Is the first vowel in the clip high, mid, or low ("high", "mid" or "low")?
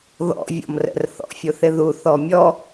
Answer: mid